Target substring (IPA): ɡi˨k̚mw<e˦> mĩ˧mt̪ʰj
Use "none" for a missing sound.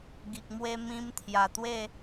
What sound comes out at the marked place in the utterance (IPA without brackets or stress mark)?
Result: e˦